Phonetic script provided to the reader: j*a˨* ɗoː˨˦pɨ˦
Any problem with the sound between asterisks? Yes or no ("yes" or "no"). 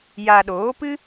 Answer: no